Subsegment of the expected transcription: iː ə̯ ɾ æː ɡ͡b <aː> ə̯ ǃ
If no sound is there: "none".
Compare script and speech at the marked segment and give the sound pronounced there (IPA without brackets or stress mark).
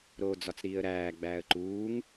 æː